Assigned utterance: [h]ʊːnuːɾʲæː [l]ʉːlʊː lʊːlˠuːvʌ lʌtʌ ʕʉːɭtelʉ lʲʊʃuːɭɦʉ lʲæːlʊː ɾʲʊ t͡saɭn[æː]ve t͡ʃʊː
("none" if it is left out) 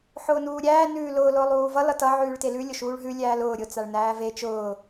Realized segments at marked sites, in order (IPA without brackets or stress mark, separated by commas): ħ, n, æː